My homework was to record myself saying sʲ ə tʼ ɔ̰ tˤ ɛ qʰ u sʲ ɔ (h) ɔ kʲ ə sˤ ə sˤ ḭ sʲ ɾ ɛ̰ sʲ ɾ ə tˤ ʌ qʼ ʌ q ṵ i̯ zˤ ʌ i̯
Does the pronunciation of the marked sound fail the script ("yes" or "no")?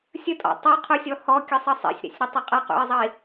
no